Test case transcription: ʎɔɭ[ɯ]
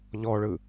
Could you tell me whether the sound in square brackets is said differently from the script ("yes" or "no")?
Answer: no